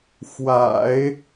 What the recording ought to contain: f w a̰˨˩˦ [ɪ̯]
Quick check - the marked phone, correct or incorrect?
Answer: correct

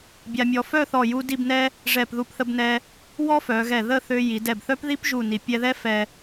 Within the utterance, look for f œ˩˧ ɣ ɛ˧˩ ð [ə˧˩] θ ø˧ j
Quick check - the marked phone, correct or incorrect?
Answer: incorrect: ə˥˧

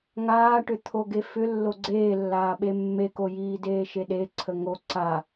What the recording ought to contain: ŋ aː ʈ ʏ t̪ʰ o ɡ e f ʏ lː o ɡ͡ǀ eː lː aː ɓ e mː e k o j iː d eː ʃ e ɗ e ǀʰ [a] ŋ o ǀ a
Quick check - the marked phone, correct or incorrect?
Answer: incorrect: ə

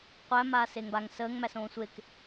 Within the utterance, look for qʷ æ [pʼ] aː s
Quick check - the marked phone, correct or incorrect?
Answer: incorrect: m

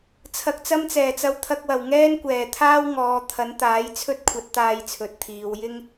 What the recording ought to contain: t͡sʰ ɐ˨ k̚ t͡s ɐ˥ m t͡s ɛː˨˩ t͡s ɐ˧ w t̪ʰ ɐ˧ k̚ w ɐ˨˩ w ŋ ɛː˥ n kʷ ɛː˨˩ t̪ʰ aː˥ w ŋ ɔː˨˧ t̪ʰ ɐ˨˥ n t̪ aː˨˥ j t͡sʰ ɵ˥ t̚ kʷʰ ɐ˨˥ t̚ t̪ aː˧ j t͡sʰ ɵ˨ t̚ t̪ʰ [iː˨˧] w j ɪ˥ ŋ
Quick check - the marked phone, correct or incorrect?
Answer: correct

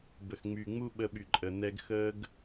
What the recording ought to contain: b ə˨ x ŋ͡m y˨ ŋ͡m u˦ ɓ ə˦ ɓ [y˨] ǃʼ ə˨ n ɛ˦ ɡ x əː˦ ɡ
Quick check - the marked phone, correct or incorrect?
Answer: correct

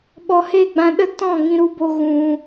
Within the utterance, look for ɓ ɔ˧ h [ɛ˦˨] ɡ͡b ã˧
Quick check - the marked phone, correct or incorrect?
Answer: incorrect: e˦˨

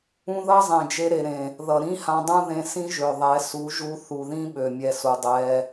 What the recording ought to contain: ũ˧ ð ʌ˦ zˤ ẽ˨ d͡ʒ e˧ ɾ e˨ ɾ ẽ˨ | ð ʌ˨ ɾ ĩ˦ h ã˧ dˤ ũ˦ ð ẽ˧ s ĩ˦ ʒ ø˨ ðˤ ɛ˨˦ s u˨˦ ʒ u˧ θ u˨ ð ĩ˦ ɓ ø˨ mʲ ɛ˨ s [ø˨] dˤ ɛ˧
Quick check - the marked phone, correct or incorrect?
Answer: incorrect: u˨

